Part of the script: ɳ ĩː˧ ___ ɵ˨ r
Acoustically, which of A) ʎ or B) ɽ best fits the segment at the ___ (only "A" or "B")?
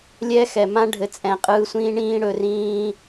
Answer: B